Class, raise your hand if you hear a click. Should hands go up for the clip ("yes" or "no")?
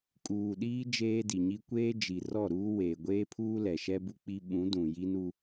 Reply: no